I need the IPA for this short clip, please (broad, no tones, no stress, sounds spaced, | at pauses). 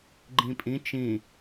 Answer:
ɡ͡ǃ ĩ pʼ ĩ t͡ʃ ĩ